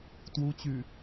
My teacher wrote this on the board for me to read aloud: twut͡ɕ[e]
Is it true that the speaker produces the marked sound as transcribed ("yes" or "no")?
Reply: no